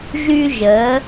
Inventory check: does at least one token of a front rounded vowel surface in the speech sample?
yes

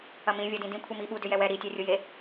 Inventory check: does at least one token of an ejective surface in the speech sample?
no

